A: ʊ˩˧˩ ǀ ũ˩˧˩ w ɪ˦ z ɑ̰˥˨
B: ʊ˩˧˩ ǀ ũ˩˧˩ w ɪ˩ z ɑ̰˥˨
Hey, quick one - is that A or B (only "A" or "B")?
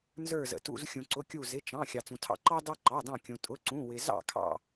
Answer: B